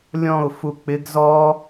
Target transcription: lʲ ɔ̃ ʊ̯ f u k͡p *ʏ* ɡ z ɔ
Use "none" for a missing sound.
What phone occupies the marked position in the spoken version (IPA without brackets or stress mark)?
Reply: ɪ